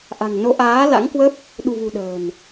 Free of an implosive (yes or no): no